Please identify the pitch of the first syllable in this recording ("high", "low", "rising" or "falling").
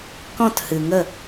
falling